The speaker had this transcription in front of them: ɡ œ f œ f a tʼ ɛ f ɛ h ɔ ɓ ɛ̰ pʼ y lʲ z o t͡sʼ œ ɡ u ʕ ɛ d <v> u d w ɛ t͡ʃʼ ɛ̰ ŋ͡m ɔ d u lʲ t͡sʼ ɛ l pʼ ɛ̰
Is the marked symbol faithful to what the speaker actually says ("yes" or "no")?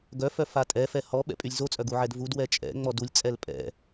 yes